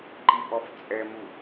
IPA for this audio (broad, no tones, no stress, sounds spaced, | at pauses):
ǃ i ʔ ɔ f t͡sʼ ɛ m u